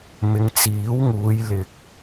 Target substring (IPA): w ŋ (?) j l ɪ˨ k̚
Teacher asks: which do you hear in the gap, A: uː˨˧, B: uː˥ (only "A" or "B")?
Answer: A